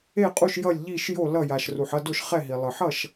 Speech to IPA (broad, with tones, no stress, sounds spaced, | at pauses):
e˥˩ qʼ u˥˩ ʃ j ʌ˥˩ lʲ ʎ i˥˩ ʃ j o˥˩ l ʌ˥˩ j a˩ ʃ r u˩ ħ ʌ˥˩ d o˥˩ ʃ χ ɛ˥˩ ɦ i˩ lˠ ɯ˩ ħ ʌ˥˩ ʃ